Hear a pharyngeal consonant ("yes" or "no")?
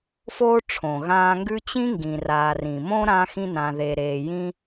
no